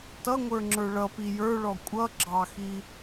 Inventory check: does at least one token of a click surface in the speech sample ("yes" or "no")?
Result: yes